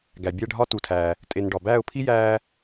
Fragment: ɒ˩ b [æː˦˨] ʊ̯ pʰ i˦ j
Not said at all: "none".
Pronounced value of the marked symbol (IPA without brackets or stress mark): æː˦˨